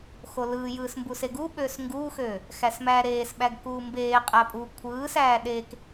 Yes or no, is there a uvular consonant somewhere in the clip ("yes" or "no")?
yes